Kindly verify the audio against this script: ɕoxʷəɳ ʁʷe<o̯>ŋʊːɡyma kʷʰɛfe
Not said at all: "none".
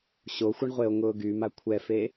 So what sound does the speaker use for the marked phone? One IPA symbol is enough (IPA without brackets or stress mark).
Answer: o̯